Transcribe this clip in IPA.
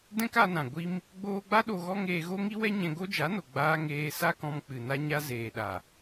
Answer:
d ɛ̃˦ k a˧ n ã˨ ɡʷ i˦ m | ɡ͡b oː˧ ɡ͡b a˦ ɗ o˧ ɣ ɔ˦ ŋ eː˧ ɣ o˦ ŋ i˦ w ɛ˦ ɲ ɛ̃˧ ɡ o˦ d͡ʒ a˨˦ n o˨ ɡ͡b aː˦ ŋ eː˧ s a˦ k ɔ̃˧ m k͡p ɨ˨ n a˧ ɲ a˧ z eː˨ ɗ a˨

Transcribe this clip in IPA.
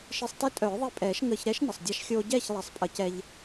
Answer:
ʃ i˧ sˤ t e˦˥ tʼ œː˨˩˦ ðˤ i˧ pʼ ɛː˨˩˦ ʃ ŋ əː˧ ç ɾ ɛ˦˥ ʃ n ə˩ sˤ dʲ a˧ ʃ xʲ oː˧ ɟ ɛː˥˨ ç lˠ ɛ˨˩˦ sˤ pʼ ə˨˩˦ c ɛ˧ ʎ

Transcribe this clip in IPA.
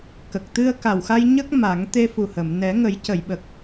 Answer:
k ə˨˩ k̚ t̪ ɨ˧ ə̯ k a˨˩ w x a˧ j ɲ ə˦˥ k̚ m a˨˩˦ ŋ t̪ e˧ f u˨˩ h ə˨˩˨ m n ɛ˨˩˦ ŋ ə˨˩˦ j c ə˨˩˨ j ɓ ə˨˩ k̚

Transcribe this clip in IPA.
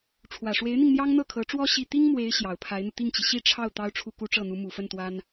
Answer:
ʈ͡ʂʰ w ä˨˩ ʂ w e˧˥ ɪ̯ n̪ i˧ ŋ n̪ j ɑ˥ ŋ n̪ ɤ˥˩ kʰ ɤ˧˥ ʈ͡ʂ w ɔ˥ ɕ i˥˩ t̪ i˥ ŋ m w e˧˥ ɪ̯ ɕ j ɑ˨˩ ʊ̯ pʰ a˧˥ ɪ̯ n̪ u˧ t̪ i˥˩ ŋ t͡ɕ i˩ ɕ i˥˧ ʈ͡ʂʰ ɑ˥˩ ʊ̯ t̪ ɑ˥ ʊ̯ ʈ͡ʂʰ u˥˩ k u˥ ʈ͡ʂ ɤ˥˩ n̪ u˧˥ m u˨˩ f ə˥˩ n t̪ w a˥ n

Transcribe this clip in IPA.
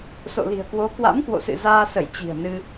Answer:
s o̰˧˨ l i̤˨˩ ə̯ k w o˨˦ k w a̰˧˥ m k w o̰˧˨ s ɨ̰˧˨ z aː˧ s ə˧˩ j t͡ɕ i̤˨˩ ə̯ n ɨ˧

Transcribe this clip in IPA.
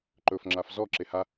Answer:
ǃ ɵ f ŋ͡ǁ a f z ɔ ǁ e h a

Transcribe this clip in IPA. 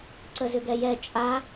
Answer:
ǀ ə z ʏ ɡ ɛ j ɛ t͡ʃʼ a

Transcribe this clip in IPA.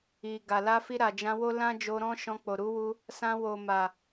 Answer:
i˨ ɡ a˨ l a˧ f i˧ ɾ a˨ d͡ʒ ã˧ w o˦ l ã˦ d͡ʒ o˧ ɾ ɔ̃˦ ʃ ɔ̃˧ k͡p o˨ ɾ u˨˦ w u˧ | s ã˧ w o˨ m a˨

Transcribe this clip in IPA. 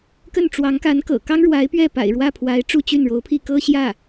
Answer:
k ə˥˩ n ʈ͡ʂ w ɑ˧˥ ŋ k a˧˥ n k ɤ̰˨˩ k ɑ˥ ŋ ɻ w a˧˥ ɪ̯ p ɥ ɛ˥˩ p a̰˨˩ ɪ̯ ɻ w ä˥˩ pʰ w a˧˥ ɪ̯ ʈ͡ʂ u˥˧ t͡ɕ y˥˩ n ɻ o˧˥ ʊ̯ pʰ i˥˩ k ɤ˥ ɕ j ä˥˩

